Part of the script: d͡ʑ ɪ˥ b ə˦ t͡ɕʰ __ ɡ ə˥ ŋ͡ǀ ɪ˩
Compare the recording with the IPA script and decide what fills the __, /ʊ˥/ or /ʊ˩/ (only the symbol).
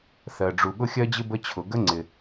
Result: ʊ˩